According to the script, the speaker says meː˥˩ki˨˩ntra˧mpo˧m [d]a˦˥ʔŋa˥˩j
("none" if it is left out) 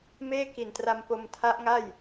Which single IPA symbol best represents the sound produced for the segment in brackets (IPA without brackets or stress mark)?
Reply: tʰ